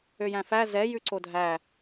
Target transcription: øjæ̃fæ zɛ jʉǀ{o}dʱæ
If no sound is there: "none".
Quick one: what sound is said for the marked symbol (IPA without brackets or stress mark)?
o